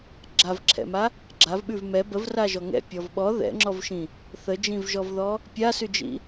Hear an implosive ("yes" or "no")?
yes